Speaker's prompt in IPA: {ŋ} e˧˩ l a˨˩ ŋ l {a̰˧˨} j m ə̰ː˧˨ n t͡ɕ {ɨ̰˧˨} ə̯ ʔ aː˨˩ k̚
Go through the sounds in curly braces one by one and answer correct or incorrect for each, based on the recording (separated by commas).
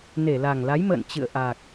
incorrect, incorrect, correct